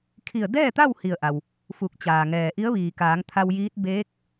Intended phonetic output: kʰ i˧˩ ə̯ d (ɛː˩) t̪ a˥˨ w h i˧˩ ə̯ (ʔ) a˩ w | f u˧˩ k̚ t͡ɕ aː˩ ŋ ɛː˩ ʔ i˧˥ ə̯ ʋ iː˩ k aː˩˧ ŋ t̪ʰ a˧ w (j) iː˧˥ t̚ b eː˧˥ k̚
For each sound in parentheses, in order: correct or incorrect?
incorrect, correct, correct

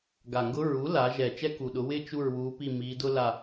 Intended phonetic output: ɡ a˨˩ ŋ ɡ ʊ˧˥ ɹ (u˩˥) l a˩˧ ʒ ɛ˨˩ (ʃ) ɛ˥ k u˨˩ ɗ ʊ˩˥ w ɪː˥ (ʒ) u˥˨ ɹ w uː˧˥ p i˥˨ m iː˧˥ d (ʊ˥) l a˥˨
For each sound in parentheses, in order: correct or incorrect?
correct, incorrect, incorrect, correct

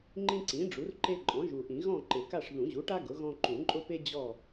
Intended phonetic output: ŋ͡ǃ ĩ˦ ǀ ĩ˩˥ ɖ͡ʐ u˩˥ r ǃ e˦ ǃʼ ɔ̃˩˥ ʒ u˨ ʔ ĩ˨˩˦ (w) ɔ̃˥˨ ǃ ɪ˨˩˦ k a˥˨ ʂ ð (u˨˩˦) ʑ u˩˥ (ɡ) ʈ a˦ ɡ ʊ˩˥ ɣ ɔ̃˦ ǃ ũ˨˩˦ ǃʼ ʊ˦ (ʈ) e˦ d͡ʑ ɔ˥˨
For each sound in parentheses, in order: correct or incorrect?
incorrect, incorrect, incorrect, incorrect

